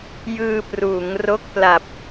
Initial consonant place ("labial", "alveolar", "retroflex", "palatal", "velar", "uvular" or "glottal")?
palatal